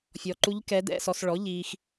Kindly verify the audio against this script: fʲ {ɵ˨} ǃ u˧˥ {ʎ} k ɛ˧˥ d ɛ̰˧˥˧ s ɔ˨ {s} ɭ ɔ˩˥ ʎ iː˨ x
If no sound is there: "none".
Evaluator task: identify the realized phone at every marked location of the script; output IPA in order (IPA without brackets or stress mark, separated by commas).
ɔ˨, ʎ, s